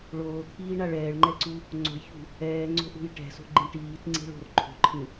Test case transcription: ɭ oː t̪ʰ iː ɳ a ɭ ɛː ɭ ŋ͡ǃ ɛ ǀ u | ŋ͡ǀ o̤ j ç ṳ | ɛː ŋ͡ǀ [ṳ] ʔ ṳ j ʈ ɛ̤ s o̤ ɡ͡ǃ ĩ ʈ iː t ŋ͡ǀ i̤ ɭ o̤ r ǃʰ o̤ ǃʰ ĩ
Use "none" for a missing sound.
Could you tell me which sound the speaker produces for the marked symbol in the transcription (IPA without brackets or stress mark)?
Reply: o̤